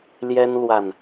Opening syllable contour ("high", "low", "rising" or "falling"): high